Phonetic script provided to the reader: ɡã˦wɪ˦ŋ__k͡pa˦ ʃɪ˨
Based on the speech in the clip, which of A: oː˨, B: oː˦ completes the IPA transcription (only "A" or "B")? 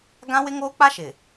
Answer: B